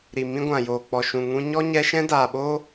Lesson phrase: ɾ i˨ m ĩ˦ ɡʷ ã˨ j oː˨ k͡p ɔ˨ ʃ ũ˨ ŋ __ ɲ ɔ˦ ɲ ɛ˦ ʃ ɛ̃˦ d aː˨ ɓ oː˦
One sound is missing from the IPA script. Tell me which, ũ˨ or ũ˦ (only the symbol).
ũ˦